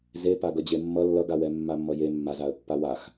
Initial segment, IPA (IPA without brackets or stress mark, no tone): z